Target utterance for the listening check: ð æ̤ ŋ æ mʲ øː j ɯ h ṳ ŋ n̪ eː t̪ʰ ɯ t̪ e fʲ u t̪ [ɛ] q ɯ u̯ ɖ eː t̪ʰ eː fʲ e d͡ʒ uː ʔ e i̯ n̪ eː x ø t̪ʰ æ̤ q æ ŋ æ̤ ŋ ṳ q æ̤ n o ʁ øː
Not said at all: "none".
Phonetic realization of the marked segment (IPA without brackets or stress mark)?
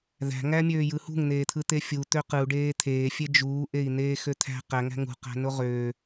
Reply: ø